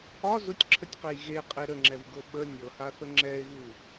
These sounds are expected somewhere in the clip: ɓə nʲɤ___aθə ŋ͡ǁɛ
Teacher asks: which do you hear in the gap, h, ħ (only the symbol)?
h